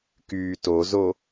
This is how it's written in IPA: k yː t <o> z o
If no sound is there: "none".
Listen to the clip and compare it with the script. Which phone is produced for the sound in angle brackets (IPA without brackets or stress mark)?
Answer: o